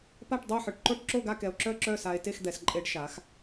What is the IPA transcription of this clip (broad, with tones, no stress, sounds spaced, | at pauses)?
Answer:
p a˥˨ ʈ dˤ o˥˨ ħ œ˧ ʈ ǃ o˥˨ ʈ ǁ o˥˨ ɡ a˥˨ k ɛ˧ o̯ ǁ œ˥˨ ǁ œ˥˨ s a˧ e̯ t e˥˨ x d̪ ɛ˩˧ s ǃʼ e˧ ɖ ʃ a˩˧ x